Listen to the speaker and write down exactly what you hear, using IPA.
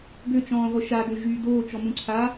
ɡ ø t͡ʃ ɔ̃ː ʁʷ ə ʃ a d ø ʒ yː d oː t͡ʃ ɔ m ũ ǀʰ a

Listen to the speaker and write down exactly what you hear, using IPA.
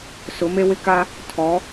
s ʊ˨˦ m e˦ w ɪ˦ k a˦ | tʰ ɔ˨˦

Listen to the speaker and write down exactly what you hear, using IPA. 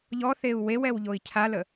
ʎ ɔ θ e u̯ w e w ɛ w ʎ o i̯ cʰ a l ə

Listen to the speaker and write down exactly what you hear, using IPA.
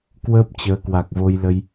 k w əː˦˥ p̚ t͡ɕ əː˨˦ k w a˨˩ k̚ v o˧ j l ə˧ j

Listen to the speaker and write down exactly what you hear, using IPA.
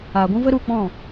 aː˨ ɡʷ ũ˦ v ə˦ ɾ u˦˨ k͡p ɔ̃˦˨

